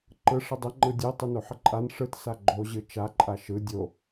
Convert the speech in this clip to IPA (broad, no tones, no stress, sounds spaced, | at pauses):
ǃ ɯ ʂ ə dˤ ə ŋ͡ǃ ɯ dʲ ɯ tˤ ɯ n o ħ ə ǃʼ a n ʂ ɯ t s a ɡ͡ǃ o ʑ ɯ t͡ʃ a ǃʼ a ʃ ɯ dʲ o